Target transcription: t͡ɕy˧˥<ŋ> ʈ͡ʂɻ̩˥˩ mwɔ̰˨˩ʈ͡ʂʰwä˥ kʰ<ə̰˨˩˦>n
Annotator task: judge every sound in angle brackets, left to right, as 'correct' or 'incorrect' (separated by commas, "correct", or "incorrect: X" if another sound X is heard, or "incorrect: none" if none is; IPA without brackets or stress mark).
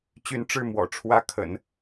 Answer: incorrect: n, correct